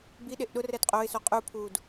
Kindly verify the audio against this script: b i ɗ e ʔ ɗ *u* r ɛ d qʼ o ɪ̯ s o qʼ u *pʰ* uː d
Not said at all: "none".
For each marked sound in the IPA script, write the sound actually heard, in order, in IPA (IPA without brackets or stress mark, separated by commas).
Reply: ʊ, pʰ